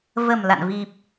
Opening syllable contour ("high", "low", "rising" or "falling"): low